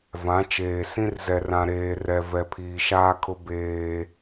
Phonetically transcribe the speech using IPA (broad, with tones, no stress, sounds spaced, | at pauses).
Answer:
v ã˨˦ t͡ʃ eː˨ s ĩ˦ r z ɛ˨ r ã˨ ɾ eː˨ r ɛ˨ v ɛ˨ pʰ iː˨ ʃ aː˦ kʰ ʊ˦ b eː˦